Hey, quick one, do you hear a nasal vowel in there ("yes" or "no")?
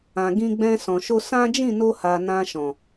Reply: yes